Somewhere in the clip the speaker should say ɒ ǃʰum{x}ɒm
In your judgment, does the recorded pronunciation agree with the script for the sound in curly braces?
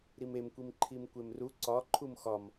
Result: yes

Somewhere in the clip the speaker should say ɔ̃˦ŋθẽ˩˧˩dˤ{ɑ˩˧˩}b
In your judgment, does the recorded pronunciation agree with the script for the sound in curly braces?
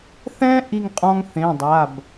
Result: no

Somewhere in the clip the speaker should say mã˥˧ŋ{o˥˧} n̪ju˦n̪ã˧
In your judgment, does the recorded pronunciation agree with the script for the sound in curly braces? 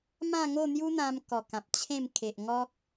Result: yes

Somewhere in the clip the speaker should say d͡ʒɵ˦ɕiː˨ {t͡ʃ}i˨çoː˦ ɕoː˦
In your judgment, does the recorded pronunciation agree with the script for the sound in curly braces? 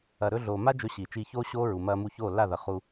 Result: yes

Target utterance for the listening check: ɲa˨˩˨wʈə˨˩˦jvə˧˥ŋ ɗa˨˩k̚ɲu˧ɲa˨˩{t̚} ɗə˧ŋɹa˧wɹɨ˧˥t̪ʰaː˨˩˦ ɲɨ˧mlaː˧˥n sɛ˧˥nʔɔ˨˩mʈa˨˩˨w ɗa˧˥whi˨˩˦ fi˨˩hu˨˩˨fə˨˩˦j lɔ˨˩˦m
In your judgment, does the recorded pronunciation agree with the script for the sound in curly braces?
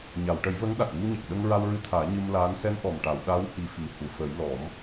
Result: no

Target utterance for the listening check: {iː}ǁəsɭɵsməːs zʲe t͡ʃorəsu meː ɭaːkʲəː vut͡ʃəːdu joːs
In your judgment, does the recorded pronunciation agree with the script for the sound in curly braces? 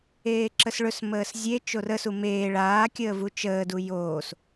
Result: no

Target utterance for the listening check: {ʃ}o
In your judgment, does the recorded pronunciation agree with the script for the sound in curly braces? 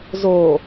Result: no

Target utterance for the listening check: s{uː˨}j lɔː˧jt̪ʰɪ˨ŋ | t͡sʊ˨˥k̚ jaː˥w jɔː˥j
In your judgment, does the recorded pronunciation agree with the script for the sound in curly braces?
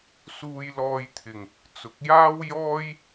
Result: no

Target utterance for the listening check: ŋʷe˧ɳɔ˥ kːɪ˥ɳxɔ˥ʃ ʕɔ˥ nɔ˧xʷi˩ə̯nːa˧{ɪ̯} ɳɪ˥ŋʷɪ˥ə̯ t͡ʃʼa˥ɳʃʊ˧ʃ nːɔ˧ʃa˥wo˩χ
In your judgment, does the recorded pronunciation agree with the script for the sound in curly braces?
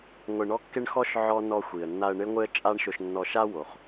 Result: no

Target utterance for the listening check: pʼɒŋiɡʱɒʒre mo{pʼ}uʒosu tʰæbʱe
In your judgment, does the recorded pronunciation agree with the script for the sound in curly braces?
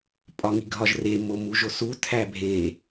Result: no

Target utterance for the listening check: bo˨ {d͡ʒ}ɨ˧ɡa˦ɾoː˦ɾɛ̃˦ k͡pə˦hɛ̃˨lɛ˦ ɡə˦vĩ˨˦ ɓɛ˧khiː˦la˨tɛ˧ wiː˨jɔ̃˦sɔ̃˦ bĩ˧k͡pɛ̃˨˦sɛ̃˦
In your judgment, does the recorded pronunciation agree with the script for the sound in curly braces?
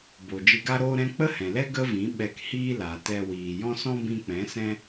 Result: yes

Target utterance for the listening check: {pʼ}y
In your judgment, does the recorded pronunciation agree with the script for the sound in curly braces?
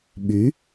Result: no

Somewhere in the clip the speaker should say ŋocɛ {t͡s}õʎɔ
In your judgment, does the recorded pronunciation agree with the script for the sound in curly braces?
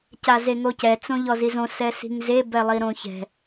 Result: yes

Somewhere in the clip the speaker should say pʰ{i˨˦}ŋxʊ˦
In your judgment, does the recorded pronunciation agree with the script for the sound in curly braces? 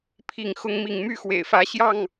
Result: no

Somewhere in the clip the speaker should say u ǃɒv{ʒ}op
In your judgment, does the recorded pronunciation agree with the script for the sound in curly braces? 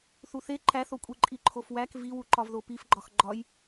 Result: no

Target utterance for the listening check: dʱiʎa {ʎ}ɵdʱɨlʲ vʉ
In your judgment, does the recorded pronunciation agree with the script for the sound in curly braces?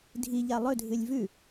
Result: no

